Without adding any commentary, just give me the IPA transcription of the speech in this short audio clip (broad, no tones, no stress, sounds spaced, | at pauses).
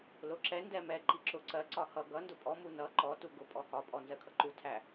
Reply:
l ʊ ǁ ɛ n d ɛ m ɛ ǃ i ǁ ʊ ǀ ɜ ǀ ɒ h ʌ ɡ ʌ n d ʊ pʼ ɔ m u n ʌ ǃ ɔ t u ɡ ʊ pʼ ɔ h ɒ pʼ ɔ n z ɜ kʰ ʌ ǃ u tʰ æ